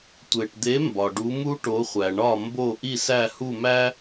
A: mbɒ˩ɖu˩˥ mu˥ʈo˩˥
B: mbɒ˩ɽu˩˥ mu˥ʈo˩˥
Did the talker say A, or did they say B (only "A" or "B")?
A